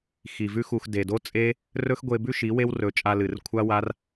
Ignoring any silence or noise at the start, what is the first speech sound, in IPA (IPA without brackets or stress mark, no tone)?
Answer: x